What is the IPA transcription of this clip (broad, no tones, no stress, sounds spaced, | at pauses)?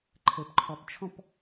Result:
ǃʰ ɘ p ǃʰ ɔ p t͡ʃʰ ɔ̃ p